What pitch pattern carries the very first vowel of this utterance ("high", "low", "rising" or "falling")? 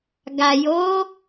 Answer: low